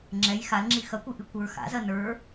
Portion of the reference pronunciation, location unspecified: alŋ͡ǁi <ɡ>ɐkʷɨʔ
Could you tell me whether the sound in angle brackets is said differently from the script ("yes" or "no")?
yes